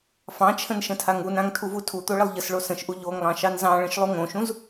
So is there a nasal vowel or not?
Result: yes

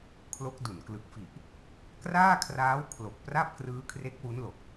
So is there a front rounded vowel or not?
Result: no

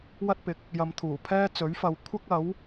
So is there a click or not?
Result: no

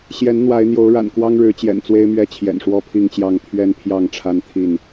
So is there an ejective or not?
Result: no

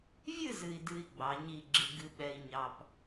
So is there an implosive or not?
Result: yes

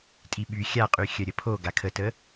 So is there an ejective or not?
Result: yes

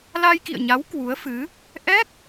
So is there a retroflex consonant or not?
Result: no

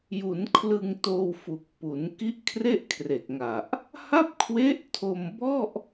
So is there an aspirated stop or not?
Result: yes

